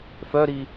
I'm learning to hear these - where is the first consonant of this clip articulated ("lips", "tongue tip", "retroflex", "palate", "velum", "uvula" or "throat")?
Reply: lips